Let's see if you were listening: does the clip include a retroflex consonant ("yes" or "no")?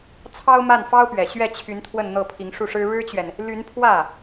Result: yes